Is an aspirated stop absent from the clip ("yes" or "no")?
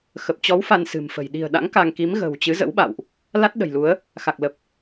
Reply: yes